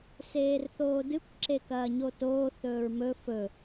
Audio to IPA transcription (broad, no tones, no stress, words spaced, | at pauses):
seːrθoːdɨkʷ ǁekɐːɲotoː θɵːɹmɵ fɵ